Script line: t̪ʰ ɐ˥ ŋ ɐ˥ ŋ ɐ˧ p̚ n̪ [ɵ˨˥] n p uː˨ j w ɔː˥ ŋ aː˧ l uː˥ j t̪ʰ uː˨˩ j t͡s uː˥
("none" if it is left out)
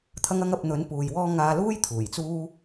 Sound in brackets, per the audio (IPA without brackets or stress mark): ɵ˨˥